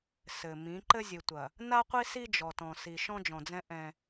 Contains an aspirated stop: no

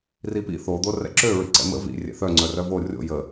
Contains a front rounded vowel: yes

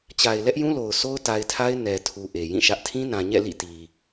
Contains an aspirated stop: yes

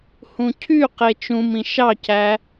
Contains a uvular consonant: yes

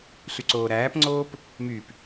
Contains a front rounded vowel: yes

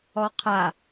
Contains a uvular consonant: yes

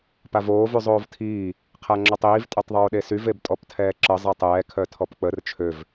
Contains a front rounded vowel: yes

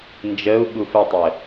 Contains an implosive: yes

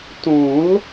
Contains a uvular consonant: no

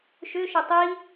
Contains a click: no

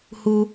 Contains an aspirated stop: no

